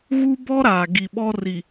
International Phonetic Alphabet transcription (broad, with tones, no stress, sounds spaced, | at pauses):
ɣ u˦ b ɔ˦ ɾ aː˨ ɡ i˨ ɓ ɔ˦ r i˨